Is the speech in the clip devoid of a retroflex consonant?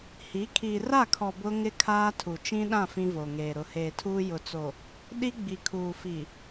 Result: yes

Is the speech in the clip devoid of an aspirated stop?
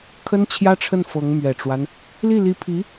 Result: no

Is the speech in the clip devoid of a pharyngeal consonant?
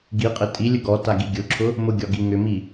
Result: yes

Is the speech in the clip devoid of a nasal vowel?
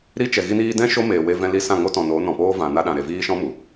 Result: no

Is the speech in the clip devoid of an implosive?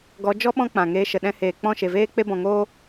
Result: no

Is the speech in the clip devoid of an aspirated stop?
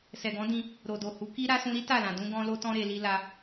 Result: yes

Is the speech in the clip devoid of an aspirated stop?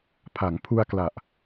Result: no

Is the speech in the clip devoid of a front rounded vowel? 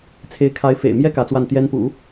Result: yes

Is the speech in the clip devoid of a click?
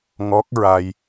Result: yes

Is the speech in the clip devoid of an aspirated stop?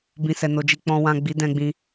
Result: yes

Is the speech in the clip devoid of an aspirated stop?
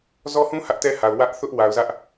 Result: yes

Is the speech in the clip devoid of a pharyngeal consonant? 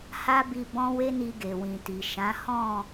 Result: yes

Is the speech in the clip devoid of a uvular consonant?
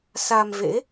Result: yes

